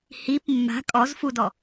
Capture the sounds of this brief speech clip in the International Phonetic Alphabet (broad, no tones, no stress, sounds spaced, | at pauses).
h i p mː a̤ kʼ ɔ z f u d ɔ